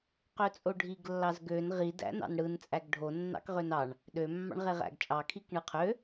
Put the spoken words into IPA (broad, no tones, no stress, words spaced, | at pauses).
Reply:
qøt͡sʼoɖʱiɡ lːɑzɡøn ʁid æ̰nɑ̰nɽɯn t͡sʼæɡɖʱo nːɑ̰kʁønɑɳ | ɗø mːɑ̰ɳʁeʁæ̰ɡt͡ʃʼɑ kʰikɳɯqʰø